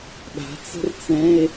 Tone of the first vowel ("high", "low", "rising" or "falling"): rising